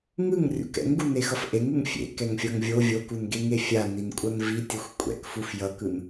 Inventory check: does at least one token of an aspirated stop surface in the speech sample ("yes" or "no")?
no